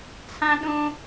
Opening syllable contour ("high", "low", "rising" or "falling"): high